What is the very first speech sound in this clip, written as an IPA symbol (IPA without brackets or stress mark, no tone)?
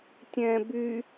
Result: tʲ